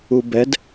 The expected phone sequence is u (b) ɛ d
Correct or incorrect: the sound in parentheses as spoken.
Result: correct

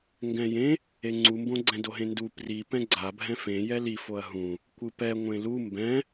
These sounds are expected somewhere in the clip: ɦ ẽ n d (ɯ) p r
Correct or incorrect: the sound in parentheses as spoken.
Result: incorrect: u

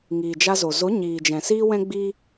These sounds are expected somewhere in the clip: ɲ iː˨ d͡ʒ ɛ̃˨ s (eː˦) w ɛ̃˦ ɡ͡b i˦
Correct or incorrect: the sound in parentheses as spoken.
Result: incorrect: iː˦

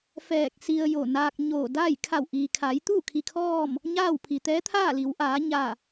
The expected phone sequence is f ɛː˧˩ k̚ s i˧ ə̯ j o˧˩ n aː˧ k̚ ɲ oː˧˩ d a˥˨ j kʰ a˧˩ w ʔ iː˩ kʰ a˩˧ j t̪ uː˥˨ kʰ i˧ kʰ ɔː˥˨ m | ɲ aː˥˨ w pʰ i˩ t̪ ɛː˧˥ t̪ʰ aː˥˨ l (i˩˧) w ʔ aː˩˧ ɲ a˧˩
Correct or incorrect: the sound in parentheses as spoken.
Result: correct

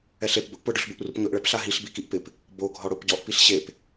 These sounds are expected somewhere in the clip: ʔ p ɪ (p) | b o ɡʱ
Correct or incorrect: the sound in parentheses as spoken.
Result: correct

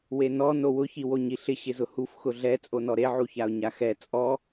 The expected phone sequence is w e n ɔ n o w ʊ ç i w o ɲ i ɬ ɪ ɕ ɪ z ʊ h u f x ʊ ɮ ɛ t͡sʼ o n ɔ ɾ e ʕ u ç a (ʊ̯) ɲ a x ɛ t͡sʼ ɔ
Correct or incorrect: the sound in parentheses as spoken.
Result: correct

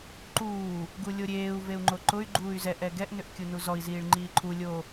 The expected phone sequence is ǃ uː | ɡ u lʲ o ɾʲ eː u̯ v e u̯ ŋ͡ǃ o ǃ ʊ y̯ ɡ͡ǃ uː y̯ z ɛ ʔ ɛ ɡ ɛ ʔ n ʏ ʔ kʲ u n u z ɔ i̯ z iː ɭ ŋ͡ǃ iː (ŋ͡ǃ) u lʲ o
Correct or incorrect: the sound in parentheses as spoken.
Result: incorrect: ǃʰ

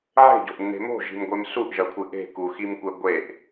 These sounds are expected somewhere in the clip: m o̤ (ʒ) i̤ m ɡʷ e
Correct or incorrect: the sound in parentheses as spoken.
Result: correct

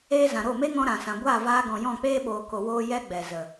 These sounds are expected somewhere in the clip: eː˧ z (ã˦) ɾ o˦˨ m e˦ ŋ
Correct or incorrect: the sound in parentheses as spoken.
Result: incorrect: ã˨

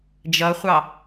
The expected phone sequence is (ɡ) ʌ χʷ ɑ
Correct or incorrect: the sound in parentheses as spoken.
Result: incorrect: d͡ʒ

